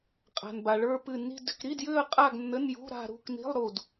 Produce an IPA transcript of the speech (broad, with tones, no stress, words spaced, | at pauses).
qʼa̤˩nba˩ɭə˞˥˧ pɨ˧˩nːi̤˥˧dʏ˥˧k ɾi˧˥˧djʏ˥˧ə̯ qʼa˥˧ɡ nːə˧˥˧njṳ˧˥˧ ɾa̤˥˧ɾṳ˧˥˧k ni̤˧˥˧lˠɾu˧˩d